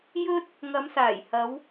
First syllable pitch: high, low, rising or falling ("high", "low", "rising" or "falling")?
high